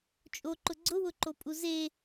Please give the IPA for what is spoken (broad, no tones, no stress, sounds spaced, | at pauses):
t͡ʃʼ o ǃ ʊ ɡ͡ǀ ʊ w ʊ ǃ o pʼ u z e